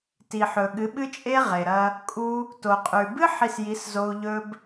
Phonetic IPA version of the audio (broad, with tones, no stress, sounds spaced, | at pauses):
t i˨ ħ ɵ˨ ɠ ɨ˨˦ ɓ ɨ˦ t͡ʃʼ e˦ ʁ e˨ ɾ ɐ˧ | kʼ u˧ | t o˨ qʼ ʉ˨ b ɨ˦ ħ i˧ s j i˨˦ s z o˧ u̯ ʎ ɵ˧ b